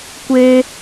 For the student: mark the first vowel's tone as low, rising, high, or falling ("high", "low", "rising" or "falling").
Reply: high